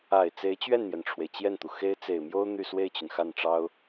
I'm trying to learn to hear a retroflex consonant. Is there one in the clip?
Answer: yes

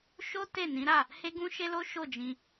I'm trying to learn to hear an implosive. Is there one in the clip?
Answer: no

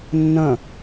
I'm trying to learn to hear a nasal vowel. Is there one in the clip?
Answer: yes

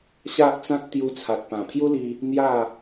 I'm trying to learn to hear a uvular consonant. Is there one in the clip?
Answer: no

